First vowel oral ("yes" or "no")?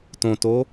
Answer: no